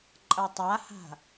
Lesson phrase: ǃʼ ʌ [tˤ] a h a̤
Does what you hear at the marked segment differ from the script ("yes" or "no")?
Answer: no